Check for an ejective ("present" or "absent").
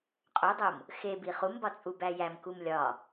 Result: present